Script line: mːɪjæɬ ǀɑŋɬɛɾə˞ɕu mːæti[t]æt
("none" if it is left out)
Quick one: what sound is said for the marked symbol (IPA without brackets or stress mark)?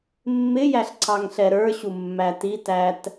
t